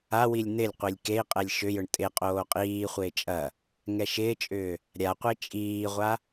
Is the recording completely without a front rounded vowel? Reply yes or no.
no